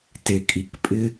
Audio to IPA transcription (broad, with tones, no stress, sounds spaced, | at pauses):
t e˧ kʼ i˧ k pʼ ɪ˦